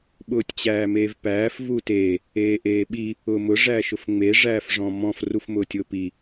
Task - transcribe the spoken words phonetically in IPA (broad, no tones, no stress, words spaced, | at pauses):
ɓʊːtʲt͡ɕæːmeːvpæːf vute | eːʔeːɓi | ʊːmʊ ʐæʃʊfŋ͡me ʐæːfʐɔ̃mɔ̃f rufmʊːtʲʊːpi